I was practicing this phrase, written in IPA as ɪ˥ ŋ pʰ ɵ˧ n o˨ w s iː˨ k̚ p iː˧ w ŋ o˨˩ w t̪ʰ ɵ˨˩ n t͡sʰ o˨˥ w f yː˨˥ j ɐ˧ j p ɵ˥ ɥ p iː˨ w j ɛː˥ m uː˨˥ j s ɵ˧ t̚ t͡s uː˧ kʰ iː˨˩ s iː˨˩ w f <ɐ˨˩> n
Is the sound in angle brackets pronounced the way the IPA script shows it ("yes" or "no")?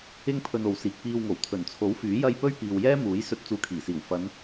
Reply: no